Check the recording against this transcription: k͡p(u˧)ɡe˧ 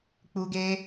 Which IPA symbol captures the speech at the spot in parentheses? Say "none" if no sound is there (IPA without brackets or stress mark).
u˧